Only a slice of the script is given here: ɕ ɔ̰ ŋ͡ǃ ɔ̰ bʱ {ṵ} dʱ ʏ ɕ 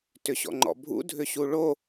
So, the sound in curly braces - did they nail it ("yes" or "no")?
yes